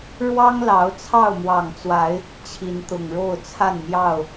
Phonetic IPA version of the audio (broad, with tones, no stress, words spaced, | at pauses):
ɻwɑ˦ŋlɑ˨˦ʊ̯ t͡sʰɑ˥˨ʊ̯mwɑ˨˩ŋt͡swa˨˦ɪ̯ | t͡ɕʰi˨˦nt̪ʊ˨˩ŋɻo˥˨ʊ̯ t͡sʰa˥˨nmjɑ˥˨ʊ̯